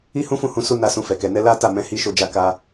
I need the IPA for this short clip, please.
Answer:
i˦ hũ˦fũ˦˨ hũ˧su˦na˦˨ sũ˧fɛ˨kɛ˨ nɛ˧ la˦ ta˦˨mɛ̃˨˦ hi˧ ʃo˧d͡ʒa˧ ka˧

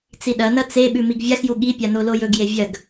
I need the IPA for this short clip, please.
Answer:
t͡siɗɐnɐ t͡seɓʉ miɡvʲaxju ɠipʲa nolojɵɡje vʲɐɡ

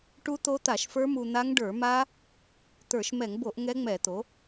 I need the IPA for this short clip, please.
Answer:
ʈu˦˥t̪o˦˥t̪a˧˩˧ʃfə˞˦˥ mu˧n̪a˦˥ŋ ɖə˞˧˩˧ma˦˥ | t̪ə˞˧˩˧ʃmɛ˧˩˧ŋbo˧˩˧ʔ ŋɛ˦˥ŋ͡mɛ˧˩˧t̪o˩˥

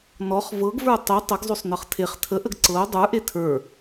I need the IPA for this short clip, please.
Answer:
nɔχ vɤɡvə˞ tˤy tˤəɡzˤosˤ nɤχtʰeχ tʰə ʔəɡǀɤʊ̯ dˤə˞ʔe tʰə˞

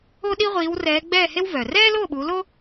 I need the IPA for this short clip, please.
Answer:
o˥ɗi˥ ʁʷiː˨˦wrɛː˨˦ɡ͡bɛː˥˨he˥w vœ˩ rɛː˥lo˥˨ɓu˨˦lo˥

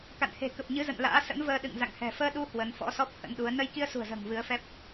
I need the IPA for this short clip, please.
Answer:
ka̰˧˨nhe̤˨˩ kə˨˩p̚ɲɨ˨˦zə̰˧˨n la̰ː˧˥ sə̰˧˥nvəː˧ ɗɨ̰˧˨ŋ za̰˧˨ŋhɛ̤˨˩ fəː˧ɗu˧ hwə˨˦n fɔ̰˧˥sɔ˦˥p̚ hə̰˧˥nɗu˨˦ə̯ nə˧jki˧ə̯sṳ˨˩ə̯zə̤ː˨˩ŋ vɨ˨˦ə̯fɛ˦˥p̚

